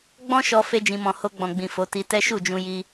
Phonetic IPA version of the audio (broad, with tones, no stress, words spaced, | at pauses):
ɡ͡bɔ̃˦ʃɔ˧ fe˦ d͡ʒĩ˧mɔ̃˧ ho˧ɡ͡bɔ̃˨ɡ͡bĩ˨ fo˨˦ti˧ tɛ˦ʃu˦˨d͡ʒũ˧ji˧